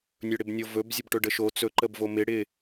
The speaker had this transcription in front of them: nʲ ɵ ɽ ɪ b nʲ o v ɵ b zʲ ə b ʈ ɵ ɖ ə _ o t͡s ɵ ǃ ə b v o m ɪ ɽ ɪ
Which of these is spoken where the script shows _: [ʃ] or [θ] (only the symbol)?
ʃ